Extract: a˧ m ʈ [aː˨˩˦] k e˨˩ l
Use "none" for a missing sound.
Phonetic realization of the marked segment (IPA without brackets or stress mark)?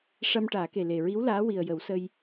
aː˨˩˦